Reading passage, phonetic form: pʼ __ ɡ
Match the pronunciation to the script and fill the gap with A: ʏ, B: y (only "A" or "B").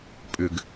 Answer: A